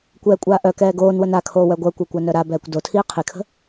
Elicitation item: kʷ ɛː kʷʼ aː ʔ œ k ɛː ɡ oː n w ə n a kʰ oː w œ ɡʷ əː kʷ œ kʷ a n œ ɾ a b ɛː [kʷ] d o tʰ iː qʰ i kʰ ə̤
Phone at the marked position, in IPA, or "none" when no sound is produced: kʷ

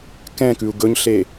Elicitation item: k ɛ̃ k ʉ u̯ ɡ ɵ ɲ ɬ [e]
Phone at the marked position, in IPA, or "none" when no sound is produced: e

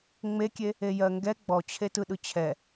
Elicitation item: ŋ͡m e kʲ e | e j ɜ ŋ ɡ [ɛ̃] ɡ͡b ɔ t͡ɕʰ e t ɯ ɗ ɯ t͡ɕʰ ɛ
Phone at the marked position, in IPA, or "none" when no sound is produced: ɛ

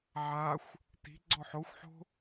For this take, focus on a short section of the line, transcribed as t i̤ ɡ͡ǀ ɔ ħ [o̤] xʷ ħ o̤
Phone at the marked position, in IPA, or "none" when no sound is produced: o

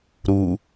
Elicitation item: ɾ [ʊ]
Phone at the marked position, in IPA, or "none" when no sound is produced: u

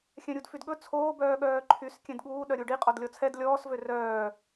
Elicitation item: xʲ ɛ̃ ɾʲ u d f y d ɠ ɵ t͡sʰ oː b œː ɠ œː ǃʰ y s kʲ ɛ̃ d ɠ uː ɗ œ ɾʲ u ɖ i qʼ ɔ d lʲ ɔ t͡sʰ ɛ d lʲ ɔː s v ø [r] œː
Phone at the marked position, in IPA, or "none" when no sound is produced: r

